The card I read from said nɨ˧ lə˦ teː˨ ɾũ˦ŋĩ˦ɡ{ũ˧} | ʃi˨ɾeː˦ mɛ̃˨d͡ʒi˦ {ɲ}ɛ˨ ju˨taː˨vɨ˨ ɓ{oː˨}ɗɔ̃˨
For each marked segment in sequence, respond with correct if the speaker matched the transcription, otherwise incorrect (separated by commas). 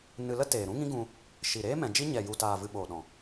correct, correct, correct